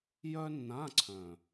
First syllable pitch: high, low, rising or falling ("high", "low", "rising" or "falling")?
high